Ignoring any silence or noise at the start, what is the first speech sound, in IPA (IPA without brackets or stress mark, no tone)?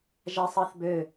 ʒ